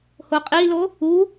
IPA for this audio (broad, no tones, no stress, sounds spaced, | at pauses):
h o qʼ i l o | u